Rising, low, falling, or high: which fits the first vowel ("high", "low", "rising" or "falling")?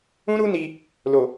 high